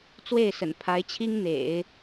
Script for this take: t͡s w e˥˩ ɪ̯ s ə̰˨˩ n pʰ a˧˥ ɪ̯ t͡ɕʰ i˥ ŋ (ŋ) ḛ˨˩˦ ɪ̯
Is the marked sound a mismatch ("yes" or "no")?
yes